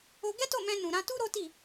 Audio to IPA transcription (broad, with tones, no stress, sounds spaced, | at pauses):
o˧ ɡ ɛ˦ t o˦˨ m ɛ̃˧ n ũ˨ ɾ ã˧ t u˦ ɾ o˦ t i˦˨